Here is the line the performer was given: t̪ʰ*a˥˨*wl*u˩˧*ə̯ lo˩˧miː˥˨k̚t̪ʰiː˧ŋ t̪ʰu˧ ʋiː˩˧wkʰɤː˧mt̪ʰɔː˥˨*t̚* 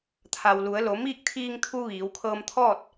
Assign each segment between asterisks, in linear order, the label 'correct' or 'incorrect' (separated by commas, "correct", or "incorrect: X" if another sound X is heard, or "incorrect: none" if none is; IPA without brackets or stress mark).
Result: incorrect: a˩, correct, correct